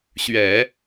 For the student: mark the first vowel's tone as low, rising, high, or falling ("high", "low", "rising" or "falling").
low